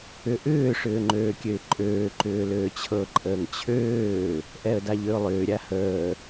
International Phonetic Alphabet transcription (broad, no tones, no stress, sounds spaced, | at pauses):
ʏ ʔ ʏː ʂ ʏː ŋ͡ǃ øː kʲ ø ɪ̯ ǃʼ øː ǃ ʏː l øː t͡ɕʰ ɤ ǃʼ əː ŋ t͡ɕʰ øː | ʔ ɛ ə̯ d a ʎ ø ʊ̯ lˠ ʏː ɾʲ a h əː